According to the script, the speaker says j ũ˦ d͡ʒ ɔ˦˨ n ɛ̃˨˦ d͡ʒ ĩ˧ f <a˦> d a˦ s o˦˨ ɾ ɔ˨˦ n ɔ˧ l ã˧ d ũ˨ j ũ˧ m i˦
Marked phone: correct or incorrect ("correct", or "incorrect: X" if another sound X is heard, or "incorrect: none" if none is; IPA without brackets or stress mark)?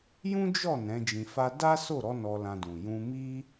correct